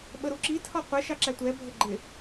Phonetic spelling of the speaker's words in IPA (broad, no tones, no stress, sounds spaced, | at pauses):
ɓ ə ɾ u ǁ i tʰ ɒ qʷ ɛ ʃ ɑ ǁ æ tʷ ɛ bʱ ə ɡ͡ǃ ɪ